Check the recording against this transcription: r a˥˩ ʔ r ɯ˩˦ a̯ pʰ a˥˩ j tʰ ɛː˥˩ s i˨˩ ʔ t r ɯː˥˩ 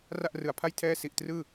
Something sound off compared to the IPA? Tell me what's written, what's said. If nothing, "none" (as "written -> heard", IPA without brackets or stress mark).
none